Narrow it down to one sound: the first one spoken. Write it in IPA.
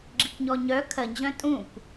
ɡ͡ǁ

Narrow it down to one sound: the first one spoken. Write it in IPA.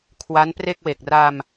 kʰ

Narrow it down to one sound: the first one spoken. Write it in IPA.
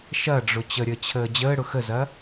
ʃ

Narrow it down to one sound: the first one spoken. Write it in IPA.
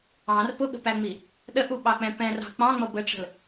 ɑ̃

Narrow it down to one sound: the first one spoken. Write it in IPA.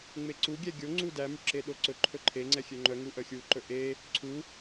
ŋ͡m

